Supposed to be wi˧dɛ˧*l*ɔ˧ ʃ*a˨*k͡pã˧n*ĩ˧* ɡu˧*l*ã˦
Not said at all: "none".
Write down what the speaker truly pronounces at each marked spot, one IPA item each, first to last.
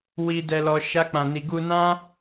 l, a˦, i˧, n

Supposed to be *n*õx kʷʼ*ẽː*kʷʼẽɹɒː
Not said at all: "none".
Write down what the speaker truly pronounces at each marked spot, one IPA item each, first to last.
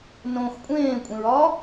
n, ẽː

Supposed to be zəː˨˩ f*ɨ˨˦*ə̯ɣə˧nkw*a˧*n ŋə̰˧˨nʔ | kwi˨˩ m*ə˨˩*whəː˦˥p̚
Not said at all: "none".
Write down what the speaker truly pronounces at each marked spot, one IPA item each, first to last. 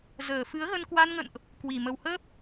ɨ˨˦, a˧, ə˨˩

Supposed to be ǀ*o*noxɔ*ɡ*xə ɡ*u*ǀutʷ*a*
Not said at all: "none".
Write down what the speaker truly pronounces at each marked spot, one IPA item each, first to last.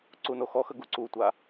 u, none, u, a

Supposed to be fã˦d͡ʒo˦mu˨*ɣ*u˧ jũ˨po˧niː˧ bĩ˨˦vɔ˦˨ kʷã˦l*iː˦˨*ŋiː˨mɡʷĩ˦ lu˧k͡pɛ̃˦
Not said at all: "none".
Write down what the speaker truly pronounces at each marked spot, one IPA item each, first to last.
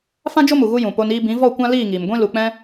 ɣ, iː˦˨

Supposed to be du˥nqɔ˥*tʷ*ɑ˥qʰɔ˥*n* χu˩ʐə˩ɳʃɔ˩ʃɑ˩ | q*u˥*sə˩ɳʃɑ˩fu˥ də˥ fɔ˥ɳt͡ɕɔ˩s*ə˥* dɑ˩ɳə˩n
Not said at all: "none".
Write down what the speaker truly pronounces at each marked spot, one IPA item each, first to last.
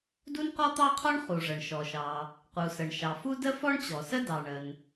t̪, ɳ, u˩, ə˥

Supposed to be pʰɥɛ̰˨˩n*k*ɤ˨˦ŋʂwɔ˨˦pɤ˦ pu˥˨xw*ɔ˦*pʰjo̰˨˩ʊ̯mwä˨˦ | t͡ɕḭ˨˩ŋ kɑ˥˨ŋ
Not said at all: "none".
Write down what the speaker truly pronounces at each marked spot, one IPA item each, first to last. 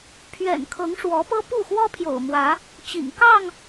kʰ, ɔ˦

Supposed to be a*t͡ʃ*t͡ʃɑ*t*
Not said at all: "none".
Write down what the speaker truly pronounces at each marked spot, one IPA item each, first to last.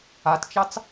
t, t͡s

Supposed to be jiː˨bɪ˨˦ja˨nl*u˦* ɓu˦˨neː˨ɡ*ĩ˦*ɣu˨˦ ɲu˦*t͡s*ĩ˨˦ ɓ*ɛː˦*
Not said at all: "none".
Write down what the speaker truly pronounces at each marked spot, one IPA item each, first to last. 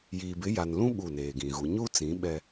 ũ˦, ĩ˨, t͡s, ɛ˦

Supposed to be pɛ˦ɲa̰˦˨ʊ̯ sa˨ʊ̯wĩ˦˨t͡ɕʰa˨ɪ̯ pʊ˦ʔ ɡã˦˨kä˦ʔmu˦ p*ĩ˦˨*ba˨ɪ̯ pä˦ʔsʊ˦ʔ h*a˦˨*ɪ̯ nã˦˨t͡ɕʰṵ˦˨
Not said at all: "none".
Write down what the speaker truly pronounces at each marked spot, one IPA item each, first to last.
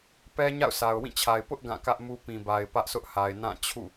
ĩ˨, a˨

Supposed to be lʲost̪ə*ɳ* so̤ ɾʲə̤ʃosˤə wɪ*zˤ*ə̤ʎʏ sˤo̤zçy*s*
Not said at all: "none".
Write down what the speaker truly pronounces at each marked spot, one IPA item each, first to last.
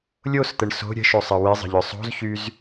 ɳ, zˤ, z

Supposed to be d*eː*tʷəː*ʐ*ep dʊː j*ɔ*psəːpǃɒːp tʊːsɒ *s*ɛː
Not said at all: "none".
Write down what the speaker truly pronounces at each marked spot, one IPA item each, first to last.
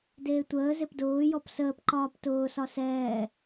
eː, z, ɔ, s

